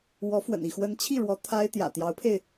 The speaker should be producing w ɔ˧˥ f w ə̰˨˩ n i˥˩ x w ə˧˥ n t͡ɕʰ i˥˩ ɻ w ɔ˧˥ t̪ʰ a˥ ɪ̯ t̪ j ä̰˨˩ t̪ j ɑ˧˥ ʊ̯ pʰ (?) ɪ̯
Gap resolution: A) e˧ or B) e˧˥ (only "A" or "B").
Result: A